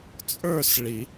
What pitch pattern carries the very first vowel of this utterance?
falling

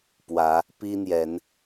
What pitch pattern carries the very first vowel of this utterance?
rising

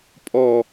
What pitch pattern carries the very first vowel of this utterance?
falling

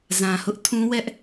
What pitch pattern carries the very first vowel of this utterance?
low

